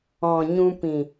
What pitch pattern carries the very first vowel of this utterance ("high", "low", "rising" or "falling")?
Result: low